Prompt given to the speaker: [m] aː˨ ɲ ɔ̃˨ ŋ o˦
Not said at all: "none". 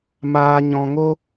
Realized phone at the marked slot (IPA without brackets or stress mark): m